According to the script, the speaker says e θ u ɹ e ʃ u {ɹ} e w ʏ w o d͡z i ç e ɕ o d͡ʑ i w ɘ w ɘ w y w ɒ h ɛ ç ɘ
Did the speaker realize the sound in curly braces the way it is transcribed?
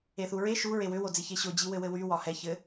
yes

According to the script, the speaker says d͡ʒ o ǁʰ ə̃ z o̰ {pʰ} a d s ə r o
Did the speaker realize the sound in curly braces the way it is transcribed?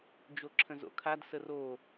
no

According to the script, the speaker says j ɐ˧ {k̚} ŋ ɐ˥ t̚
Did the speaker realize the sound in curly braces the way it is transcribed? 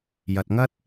no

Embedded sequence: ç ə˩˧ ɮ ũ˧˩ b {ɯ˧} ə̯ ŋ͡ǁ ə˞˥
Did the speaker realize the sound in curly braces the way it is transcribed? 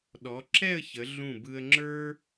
yes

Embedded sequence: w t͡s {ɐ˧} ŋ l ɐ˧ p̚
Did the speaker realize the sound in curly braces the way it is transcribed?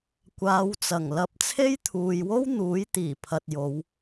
no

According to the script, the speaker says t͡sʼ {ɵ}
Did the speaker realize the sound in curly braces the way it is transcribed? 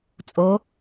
no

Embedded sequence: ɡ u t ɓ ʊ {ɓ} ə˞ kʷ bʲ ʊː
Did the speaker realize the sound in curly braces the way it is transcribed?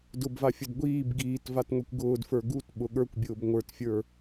no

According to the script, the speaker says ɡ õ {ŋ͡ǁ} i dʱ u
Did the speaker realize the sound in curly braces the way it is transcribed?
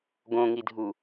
no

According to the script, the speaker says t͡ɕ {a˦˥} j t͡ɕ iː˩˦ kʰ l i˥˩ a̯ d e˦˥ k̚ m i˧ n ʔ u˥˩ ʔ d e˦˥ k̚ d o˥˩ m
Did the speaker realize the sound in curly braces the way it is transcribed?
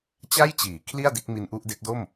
no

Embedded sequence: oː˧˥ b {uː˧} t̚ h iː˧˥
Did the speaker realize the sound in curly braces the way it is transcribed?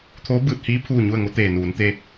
no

